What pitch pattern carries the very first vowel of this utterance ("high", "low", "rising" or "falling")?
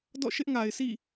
falling